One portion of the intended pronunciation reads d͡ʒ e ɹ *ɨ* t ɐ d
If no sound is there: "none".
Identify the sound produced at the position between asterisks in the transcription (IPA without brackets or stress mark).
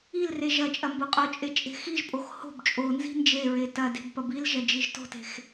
e